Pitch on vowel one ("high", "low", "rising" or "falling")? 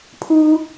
high